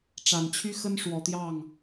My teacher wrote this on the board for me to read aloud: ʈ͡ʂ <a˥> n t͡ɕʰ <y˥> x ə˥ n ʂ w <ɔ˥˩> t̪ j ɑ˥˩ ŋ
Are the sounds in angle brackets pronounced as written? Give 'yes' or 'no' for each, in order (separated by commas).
no, yes, no